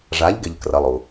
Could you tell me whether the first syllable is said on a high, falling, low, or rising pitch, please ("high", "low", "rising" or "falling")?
rising